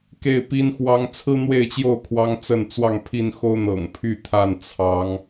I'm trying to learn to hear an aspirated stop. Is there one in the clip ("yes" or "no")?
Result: yes